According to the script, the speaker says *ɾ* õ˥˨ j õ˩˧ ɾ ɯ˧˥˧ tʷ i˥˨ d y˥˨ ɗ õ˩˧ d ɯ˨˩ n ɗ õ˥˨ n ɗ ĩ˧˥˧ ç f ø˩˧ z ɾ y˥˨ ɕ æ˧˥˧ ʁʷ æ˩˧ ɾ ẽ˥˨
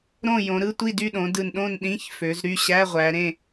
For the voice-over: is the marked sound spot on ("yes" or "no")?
yes